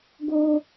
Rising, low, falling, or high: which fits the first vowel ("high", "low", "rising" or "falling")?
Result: high